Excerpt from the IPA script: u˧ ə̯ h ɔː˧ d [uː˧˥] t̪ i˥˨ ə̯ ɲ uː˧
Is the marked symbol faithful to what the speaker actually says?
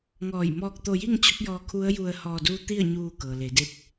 yes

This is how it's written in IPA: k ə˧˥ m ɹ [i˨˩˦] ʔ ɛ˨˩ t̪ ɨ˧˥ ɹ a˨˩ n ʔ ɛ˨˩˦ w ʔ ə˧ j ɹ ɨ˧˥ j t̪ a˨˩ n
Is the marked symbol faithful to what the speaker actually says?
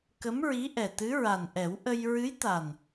no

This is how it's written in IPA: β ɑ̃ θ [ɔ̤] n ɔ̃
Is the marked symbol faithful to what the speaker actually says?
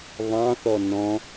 no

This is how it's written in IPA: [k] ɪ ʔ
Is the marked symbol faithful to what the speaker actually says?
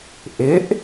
no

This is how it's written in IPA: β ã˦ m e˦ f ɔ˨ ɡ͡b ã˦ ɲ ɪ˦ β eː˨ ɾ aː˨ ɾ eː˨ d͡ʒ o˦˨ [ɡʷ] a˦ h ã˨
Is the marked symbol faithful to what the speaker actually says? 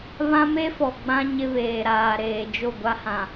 yes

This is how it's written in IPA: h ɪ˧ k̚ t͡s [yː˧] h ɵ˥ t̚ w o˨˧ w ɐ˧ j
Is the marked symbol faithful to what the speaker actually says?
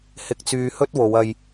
yes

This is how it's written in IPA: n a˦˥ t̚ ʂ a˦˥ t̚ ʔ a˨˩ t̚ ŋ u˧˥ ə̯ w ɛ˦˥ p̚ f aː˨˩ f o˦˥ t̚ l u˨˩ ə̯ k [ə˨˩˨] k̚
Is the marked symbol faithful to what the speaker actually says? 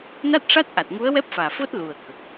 no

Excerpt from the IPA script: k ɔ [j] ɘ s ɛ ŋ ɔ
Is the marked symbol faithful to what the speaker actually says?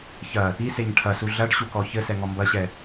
no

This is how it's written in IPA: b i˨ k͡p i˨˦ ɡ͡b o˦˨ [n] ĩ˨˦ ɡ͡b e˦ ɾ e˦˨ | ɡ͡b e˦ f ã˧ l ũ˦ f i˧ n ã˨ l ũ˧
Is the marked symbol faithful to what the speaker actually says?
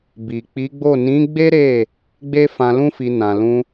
yes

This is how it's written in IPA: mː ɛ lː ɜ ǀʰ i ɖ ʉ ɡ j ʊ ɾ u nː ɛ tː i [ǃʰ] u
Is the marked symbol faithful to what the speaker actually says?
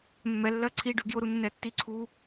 no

